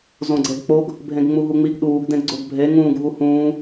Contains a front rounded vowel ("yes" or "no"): no